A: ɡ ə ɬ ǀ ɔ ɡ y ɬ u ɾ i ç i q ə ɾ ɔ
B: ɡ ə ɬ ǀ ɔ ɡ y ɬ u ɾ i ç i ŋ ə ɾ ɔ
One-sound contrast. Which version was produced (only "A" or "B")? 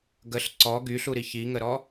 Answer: B